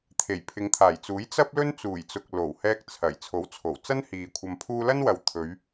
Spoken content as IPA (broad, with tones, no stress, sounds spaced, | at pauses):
t̪ʰ e˨˩ j pʰ ɪ˨˧ ŋ t̪ʰ aː˨˩ j t͡s uː˨˥ j t͡s ɐ˥ p̚ l ɵ˥ n t͡s uː˨˩ j t͡s ʊ˨ k̚ l o˨˩ w h ɛː˧ k̚ t͡sʰ ɐ˨˩ j t͡sʰ o˨˥ w t͡sʰ o˨˩ w t͡s ɐ˥ n h iː˨ kʷʰ ɐ˧ m pʰ uː˥ l ɐ˥ n w ɐ˨ w t̪ʰ ɵ˨˧ ɥ